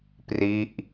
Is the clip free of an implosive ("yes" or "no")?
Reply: yes